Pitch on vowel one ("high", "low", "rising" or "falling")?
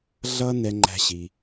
high